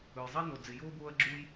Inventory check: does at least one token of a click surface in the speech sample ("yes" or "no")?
yes